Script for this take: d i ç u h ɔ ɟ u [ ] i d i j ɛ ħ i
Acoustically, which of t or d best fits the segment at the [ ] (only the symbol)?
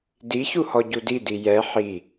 d